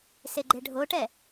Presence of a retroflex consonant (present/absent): present